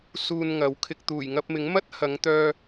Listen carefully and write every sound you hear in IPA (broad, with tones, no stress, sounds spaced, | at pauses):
s uː˧ n ŋ ɐ˨˥ w kʰ ɪ˧ k̚ t̪ uː˨˩ j ŋ ɐ˧ p̚ m ɪ˨˥ ŋ m ɐ˥ t̚ h ɐ˨˧ ŋ t̪ œː˧